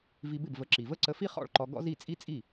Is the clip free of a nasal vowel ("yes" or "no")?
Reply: yes